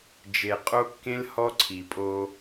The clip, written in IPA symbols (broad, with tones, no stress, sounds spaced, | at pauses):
d͡ʒ e˨ qʼ o˦ kː ẽ˦ l h ɔ˦ ǀʰ i˨ pʼ o˦